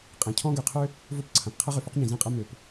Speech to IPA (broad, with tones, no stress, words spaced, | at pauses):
qʼẽ˩cʰɔ̃˥ɡø˩qʰø˥ | vo˥pǀʰɐ̃˩p qʰɐ˥ʁʏ˩fʊ˥qɲĩ˩ zĩ˥qʼɐ˥ mø˩p